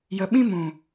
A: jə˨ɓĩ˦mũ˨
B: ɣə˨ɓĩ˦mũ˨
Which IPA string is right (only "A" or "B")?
A